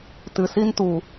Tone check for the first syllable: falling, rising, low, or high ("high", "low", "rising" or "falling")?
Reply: low